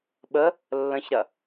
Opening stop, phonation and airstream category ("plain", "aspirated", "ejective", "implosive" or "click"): implosive